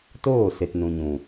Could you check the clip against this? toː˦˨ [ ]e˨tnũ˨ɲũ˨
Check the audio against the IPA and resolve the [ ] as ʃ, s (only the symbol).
s